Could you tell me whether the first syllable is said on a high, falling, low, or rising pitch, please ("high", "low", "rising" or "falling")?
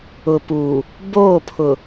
low